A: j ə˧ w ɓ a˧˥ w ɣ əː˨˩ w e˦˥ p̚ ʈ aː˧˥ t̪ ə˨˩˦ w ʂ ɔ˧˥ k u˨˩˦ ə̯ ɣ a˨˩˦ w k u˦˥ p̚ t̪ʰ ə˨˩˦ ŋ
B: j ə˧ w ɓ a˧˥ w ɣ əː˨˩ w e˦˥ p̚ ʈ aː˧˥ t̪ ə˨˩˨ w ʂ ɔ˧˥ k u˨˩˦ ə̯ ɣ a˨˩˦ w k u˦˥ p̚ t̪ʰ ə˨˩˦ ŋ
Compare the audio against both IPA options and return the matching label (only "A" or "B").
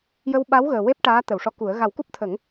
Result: B